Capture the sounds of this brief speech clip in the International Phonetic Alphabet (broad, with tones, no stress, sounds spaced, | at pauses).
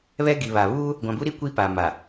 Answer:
β ɛ˦ ɡ i˨ β a˨ β uː˦ | ɡʷ ã˨ b u˦ ɾ i˦ kʷ i˦ p a˨ m a˨